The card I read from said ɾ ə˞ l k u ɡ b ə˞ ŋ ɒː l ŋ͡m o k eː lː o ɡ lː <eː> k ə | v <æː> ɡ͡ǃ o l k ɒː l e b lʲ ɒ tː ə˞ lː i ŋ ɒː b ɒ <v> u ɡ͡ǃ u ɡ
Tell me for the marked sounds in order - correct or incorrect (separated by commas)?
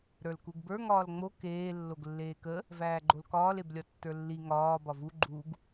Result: correct, correct, correct